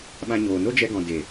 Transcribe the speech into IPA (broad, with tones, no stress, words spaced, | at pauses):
ɓã˧ɲoː˨ no˦d͡ʒɛ˧ɡɔ̃˨ de˨